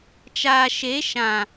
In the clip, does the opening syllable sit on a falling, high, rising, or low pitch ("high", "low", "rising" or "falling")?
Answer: low